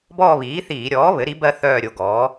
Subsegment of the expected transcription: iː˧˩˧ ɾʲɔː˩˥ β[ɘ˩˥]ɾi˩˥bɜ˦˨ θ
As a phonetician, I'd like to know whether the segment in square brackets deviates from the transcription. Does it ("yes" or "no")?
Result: no